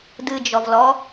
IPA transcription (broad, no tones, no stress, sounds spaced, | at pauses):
d ɨ d͡ʒ ɔ v l ɔ